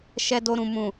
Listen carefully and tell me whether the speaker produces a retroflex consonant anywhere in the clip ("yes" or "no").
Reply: no